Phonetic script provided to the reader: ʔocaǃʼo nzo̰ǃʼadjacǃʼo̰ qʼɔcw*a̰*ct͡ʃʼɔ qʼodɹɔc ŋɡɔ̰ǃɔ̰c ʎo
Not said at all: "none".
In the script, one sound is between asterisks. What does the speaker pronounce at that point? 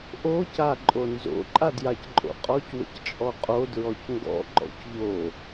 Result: ə̰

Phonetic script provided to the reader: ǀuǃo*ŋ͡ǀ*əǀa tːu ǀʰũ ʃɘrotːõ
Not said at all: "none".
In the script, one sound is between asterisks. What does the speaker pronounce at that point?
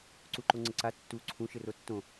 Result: ŋ͡ǀ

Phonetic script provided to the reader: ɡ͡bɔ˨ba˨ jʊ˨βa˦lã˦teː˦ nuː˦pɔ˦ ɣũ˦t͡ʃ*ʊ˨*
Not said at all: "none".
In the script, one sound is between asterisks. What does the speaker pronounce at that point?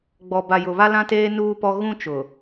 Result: ʊ˨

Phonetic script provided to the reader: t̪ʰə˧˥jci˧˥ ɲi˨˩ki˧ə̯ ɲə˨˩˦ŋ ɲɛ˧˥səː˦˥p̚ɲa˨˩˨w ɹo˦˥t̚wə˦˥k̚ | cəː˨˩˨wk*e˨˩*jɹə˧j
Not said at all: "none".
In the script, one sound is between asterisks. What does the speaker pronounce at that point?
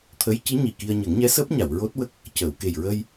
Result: e˨˩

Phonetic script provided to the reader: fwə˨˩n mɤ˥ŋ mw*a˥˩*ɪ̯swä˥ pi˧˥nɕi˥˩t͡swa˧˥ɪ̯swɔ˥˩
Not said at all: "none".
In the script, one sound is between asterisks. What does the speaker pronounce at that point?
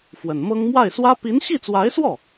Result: a˥˩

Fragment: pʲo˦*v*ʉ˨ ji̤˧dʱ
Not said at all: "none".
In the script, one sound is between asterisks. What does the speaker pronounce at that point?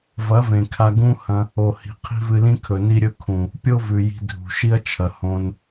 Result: v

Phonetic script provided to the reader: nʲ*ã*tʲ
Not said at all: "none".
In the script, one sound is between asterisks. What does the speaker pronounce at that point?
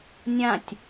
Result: ã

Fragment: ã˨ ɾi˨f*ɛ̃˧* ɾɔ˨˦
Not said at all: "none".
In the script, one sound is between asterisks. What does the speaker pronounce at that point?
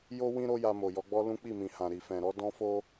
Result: ɛ̃˨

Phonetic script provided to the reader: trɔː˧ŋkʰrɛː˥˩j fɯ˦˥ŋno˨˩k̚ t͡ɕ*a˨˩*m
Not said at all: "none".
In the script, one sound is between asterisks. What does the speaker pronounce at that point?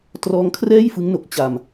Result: a˨˩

